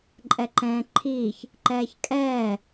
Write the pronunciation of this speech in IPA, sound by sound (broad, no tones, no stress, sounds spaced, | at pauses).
ǃʼ ɛ ǃ ɛ̃ː ǃʰ iː ç | ǃ ɛː ç kʼ ɛː